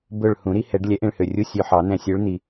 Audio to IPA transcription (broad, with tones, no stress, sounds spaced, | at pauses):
b ɵ˨˩ ɭ h ũ˨˩˦ ɾ i˦˥ h ɛ˨˩˦ ɖ lʲ ɛ˨˥ ʔ ẽ˧ ɭ h ø˨˩ rʲ u˧˥˧ sʲ ø˧ ħ ɑ˨˩˦ n ɛ̃˧ sʲ ø˨˥ ɭ n̪ i˨˩